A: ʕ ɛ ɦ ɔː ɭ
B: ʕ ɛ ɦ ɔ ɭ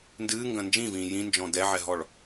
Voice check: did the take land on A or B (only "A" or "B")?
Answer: B